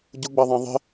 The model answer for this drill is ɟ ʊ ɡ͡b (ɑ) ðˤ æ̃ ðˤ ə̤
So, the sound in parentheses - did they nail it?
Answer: yes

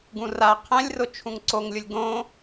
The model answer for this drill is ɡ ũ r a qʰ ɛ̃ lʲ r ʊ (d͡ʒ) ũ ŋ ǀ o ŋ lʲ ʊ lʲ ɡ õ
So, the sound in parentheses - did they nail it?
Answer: no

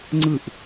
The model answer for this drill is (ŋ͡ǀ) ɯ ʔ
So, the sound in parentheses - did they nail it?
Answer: yes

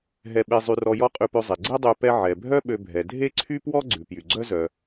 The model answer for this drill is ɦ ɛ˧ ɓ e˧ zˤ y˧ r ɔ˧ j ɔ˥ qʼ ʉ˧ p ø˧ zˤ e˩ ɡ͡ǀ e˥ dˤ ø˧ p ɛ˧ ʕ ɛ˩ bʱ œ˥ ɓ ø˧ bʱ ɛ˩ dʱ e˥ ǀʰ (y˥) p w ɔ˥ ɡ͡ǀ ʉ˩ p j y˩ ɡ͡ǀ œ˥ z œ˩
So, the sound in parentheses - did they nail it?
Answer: yes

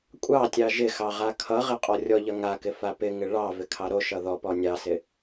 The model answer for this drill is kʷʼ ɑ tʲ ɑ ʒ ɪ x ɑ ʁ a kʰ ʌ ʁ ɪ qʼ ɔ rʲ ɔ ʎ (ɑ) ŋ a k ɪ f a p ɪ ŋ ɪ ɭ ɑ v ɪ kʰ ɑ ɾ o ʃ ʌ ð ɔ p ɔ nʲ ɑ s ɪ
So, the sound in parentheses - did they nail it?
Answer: no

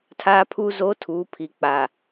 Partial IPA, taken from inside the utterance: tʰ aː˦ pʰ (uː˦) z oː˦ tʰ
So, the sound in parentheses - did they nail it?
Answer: yes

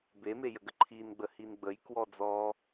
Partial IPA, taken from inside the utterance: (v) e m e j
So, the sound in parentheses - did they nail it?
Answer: no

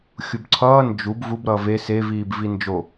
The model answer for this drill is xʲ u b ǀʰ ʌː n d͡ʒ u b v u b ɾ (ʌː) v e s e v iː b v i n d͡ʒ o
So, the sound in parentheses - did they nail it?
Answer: yes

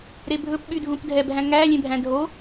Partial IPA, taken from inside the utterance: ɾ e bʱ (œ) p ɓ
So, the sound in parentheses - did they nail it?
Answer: no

